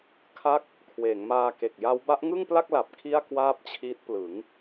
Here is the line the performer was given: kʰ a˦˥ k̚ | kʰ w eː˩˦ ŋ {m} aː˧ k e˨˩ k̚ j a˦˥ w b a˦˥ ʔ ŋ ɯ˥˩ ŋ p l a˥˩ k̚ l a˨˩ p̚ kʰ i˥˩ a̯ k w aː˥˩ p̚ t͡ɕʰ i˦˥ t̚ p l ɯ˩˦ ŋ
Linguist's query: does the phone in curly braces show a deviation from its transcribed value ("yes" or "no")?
no